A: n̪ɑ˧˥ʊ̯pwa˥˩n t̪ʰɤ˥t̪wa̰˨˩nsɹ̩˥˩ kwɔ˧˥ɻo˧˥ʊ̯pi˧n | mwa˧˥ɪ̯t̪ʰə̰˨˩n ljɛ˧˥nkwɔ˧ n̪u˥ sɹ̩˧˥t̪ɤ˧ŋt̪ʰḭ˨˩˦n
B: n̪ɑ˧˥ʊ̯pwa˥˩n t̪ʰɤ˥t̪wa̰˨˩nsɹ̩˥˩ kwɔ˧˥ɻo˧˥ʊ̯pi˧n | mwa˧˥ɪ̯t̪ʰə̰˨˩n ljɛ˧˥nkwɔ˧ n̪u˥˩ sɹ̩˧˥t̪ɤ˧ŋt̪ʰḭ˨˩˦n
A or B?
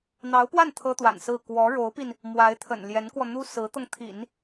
A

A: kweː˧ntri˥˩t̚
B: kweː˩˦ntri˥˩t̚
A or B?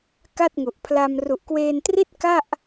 A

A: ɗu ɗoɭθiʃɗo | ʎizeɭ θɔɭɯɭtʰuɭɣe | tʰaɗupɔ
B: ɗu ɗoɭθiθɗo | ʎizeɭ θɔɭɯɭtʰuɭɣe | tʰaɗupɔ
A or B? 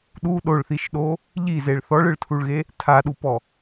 A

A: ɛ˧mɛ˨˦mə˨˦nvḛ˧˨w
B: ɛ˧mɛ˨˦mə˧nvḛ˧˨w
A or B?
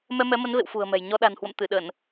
A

